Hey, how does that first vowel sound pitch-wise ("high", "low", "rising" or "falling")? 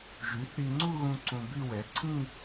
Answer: rising